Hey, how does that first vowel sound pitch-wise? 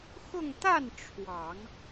falling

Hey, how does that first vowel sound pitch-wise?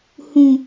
low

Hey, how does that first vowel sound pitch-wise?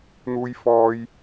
low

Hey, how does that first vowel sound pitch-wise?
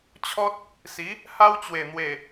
high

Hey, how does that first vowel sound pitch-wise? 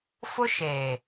high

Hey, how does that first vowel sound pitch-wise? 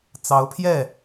rising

